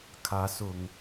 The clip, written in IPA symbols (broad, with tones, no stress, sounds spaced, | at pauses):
kʰ ä˨˦ s ʊ˨˩ ŋ